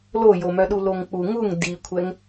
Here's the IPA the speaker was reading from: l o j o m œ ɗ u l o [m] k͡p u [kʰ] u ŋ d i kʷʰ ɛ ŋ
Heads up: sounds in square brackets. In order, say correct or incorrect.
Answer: incorrect: ŋ, incorrect: ŋ

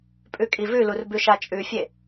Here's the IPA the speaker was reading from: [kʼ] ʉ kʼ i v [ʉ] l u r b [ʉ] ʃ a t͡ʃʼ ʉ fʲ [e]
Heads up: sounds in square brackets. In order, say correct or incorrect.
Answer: incorrect: pʼ, correct, correct, correct

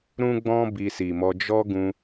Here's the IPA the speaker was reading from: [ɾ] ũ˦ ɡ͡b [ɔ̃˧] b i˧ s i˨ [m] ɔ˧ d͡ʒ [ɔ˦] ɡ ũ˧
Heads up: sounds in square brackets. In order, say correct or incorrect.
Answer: correct, incorrect: ɔ̃˦, correct, correct

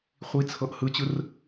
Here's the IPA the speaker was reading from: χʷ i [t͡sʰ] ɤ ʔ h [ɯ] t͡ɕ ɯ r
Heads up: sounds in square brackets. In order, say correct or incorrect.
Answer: correct, correct

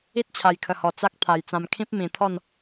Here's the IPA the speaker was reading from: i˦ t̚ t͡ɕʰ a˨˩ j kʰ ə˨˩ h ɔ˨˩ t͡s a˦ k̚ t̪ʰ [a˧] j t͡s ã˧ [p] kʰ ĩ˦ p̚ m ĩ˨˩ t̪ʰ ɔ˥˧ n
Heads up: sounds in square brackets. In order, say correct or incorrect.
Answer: incorrect: a˨˩, incorrect: m

